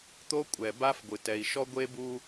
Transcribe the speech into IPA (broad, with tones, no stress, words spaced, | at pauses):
t̪o˦kʷʼɛ˨ba˦fɡʷɨ˨ tɛ˨i̯ʃɔ˦ ɡʷe˦bu˦